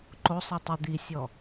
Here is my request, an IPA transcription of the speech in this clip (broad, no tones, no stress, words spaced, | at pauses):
ǃosˤi tˤi d̪isʲɔ